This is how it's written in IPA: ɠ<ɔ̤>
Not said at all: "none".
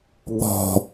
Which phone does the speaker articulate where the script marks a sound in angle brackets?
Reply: ɔ̤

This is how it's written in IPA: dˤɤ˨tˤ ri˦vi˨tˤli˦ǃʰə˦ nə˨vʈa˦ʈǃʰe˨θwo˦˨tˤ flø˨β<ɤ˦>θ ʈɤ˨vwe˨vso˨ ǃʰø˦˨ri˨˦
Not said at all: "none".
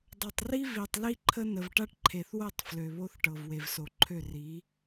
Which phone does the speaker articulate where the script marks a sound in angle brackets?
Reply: o˦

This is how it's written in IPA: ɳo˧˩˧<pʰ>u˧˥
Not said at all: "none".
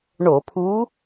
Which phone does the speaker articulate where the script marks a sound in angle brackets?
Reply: pʰ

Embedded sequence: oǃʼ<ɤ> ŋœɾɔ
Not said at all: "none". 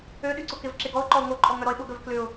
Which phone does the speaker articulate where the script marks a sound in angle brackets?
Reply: ɔ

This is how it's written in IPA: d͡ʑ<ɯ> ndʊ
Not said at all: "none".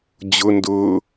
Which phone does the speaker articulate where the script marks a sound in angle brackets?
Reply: ʊ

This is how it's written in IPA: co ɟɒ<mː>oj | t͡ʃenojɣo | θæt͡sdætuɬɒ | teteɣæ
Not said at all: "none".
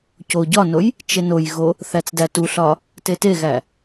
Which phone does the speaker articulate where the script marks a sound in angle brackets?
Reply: n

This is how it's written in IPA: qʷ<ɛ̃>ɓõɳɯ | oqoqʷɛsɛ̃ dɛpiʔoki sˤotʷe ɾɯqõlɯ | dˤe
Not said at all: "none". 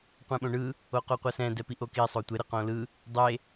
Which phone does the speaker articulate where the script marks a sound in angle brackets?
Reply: ɛ̃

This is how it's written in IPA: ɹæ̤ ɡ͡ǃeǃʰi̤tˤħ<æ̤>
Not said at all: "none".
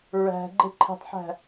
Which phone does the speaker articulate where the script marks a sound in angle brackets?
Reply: æ̤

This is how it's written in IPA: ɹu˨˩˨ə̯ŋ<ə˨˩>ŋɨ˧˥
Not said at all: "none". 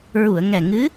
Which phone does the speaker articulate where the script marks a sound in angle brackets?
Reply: ɛ˨˩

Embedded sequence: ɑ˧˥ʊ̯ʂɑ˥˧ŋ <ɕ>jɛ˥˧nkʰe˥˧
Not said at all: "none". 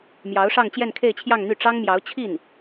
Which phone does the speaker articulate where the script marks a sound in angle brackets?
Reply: t͡ɕ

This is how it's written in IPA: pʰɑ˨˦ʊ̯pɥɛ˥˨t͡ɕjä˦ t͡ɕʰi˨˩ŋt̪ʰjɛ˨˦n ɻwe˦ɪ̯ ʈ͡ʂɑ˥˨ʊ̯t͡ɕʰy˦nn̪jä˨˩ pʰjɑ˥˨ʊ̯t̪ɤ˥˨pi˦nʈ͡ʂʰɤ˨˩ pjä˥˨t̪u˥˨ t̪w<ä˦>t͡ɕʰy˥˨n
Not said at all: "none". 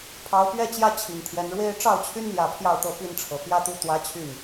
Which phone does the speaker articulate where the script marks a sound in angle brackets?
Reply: ä˦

